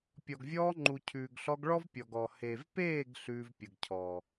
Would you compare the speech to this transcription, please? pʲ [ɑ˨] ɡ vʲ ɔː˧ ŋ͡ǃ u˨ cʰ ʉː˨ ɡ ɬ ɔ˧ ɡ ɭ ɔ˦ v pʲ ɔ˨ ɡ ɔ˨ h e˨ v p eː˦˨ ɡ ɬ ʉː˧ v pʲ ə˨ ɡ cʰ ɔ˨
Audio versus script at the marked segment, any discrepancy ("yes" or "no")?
yes